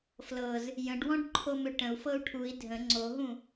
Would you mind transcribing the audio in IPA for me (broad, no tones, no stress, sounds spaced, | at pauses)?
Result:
f l ɤ z | j ə̃ ɖ w ɔ̃ ɖ ǃʰ o m ʏ ʈ ə̃ u̯ f ɤ u̯ ʈʰ u i̯ dʱ ə̃ ŋ͡ǀ o ɦ ũ